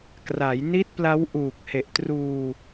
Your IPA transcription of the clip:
k r a˩˦ j n i˦˥ t̚ p l a˦˥ w ʔ uː˨˩ k̚ h e˨˩ ʔ t r uː˧

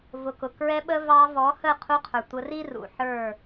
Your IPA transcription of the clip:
v ʊ˨ k ʊ˨ k ɹ ɛ˧ ɓ ə˧ v ɑ˧ v ɔ˨˦ h ə˦˨ qʰ u˧ qʰ ə˞˨ tʷ ə˧ r i˦ r ṵ˨ ħ ə˞˦˨

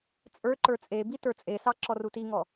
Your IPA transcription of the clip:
t͡sʼ ə˞ ǃ ə˞ t͡sʼ e b i t ə˞ t͡sʼ e s ɑ ǁ ɔ r u t i ŋ ɔ

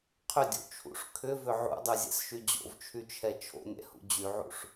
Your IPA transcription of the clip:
qʰ ʏ dʲ o̰ t͡ʃʰ ṵ ʂ kʰ ʏ v ʏ ʕ ṵ dˤ y zʲ ɛ̰ s ʃ y d͡ʑ o̰ v t͡ʃʰ y t͡ʃʰ ɛ t͡ʃʰ o̰ nʲ ɛ̰ h ṵ d͡ʑ y ʕ ṵ ʂ

